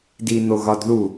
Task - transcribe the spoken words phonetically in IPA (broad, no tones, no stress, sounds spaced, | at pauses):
d i n̪ o ɣ ɒ d ð u